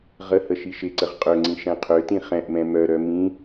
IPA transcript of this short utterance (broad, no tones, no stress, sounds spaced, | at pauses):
ʁ ə h ə ʃ i ʃ ɪ ǀ ə ʁ qʼ ø ŋ͡ǀ ĩ ʃ ɛ̃ qʰ ø t ĩ χ ɛ̃ ʔ m ɛ̃ m œ ɾ œ m ĩ